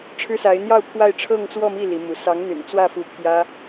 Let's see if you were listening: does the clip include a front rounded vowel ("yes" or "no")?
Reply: yes